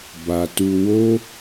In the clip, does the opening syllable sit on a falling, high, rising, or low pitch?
low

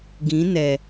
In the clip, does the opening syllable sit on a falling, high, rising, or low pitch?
rising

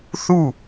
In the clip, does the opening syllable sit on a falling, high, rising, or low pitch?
falling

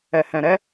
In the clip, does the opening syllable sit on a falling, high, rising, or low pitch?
low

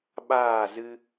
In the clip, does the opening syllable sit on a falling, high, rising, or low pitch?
falling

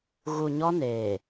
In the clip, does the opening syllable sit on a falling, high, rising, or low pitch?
low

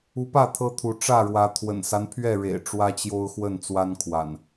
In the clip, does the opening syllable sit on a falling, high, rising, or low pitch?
rising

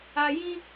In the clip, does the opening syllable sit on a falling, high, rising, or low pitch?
low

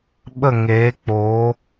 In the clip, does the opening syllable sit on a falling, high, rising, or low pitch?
falling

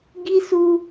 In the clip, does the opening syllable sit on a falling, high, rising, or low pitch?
high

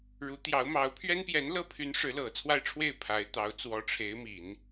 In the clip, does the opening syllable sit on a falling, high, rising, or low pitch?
rising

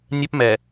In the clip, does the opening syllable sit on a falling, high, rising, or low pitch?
high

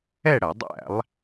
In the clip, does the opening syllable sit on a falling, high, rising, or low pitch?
falling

